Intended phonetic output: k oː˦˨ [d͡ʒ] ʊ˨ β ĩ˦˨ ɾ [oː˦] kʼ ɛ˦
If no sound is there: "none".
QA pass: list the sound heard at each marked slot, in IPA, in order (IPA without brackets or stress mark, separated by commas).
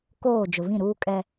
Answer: d͡ʒ, uː˦